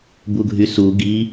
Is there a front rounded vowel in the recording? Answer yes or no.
yes